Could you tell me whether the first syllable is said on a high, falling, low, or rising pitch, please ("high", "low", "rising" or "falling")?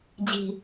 high